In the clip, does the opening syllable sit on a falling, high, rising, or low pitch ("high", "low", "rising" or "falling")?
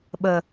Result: low